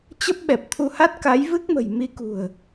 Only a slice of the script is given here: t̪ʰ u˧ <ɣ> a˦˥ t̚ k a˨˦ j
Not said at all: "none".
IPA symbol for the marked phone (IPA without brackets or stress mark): h